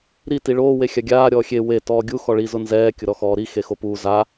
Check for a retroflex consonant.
present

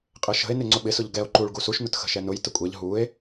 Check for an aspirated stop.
absent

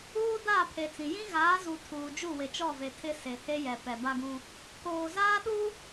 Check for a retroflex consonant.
absent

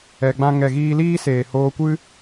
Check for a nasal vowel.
present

